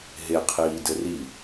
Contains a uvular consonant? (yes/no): yes